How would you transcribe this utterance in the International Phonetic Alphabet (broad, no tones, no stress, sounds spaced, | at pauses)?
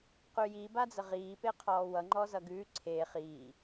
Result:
q ʉ j i b a d͡z ə ʁ iː p e qʰ ɔː w ʌ ŋ͡ǃ ɔ z ʌ ɡ ʉː ǀʰ e χ iː